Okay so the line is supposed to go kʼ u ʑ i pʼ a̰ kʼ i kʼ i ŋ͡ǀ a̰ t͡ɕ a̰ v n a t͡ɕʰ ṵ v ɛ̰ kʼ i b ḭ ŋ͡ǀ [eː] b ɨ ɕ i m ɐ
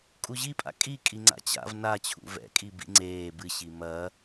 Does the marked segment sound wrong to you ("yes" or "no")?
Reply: no